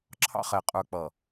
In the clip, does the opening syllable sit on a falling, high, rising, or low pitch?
high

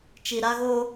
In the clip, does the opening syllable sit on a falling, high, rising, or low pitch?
low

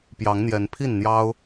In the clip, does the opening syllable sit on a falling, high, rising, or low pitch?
rising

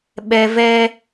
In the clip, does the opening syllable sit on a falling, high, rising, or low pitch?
high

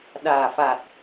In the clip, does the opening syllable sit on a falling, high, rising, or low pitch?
low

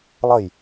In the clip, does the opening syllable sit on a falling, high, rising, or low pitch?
falling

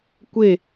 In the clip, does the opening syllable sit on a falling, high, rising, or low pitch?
falling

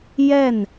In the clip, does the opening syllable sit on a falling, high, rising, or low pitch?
falling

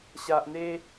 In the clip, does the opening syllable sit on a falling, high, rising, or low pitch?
low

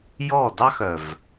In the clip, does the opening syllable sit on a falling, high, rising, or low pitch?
falling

